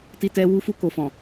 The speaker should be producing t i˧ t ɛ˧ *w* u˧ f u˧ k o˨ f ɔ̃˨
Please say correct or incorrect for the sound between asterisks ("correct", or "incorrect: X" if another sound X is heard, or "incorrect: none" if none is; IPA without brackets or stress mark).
correct